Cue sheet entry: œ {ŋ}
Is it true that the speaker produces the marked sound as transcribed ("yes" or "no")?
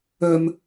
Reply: no